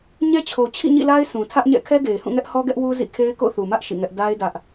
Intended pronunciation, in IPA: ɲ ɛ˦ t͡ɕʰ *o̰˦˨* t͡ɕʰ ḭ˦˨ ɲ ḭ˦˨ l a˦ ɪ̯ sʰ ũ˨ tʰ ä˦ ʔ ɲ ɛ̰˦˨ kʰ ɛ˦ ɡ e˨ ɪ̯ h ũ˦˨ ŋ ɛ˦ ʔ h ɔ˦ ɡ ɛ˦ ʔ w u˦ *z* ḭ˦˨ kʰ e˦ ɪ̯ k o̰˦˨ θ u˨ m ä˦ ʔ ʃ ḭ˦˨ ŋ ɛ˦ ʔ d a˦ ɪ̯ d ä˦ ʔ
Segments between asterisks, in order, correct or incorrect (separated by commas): incorrect, correct